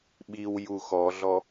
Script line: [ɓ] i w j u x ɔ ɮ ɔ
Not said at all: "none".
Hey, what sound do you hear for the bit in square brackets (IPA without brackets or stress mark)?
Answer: ɓ